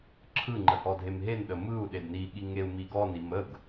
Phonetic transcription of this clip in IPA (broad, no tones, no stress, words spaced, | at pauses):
ǁʰɯŋ͡ǃə hɔdʱemɦenɗə mɯu̯ɗed niɠi ŋeu̯miɡɔnim əɡ